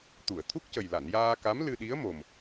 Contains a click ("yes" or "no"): no